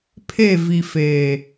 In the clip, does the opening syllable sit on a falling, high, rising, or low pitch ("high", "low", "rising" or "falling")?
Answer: falling